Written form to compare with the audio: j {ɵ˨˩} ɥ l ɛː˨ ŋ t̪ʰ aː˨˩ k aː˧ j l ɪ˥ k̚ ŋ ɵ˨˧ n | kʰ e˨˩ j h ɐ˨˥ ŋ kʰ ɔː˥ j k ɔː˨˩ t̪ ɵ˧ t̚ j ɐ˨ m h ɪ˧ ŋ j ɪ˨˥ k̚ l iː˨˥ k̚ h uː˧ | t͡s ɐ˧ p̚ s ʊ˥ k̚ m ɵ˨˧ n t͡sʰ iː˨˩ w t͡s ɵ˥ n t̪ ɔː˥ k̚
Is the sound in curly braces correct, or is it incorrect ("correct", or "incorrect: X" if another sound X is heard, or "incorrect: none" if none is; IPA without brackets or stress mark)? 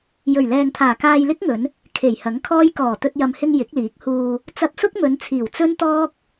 correct